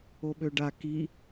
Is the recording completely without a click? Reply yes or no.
yes